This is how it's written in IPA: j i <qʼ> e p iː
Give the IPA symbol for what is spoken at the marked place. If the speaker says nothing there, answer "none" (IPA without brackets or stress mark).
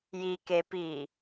k